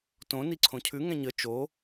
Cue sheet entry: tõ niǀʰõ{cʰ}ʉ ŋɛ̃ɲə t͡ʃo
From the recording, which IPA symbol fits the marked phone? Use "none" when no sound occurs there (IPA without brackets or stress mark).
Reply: cʰ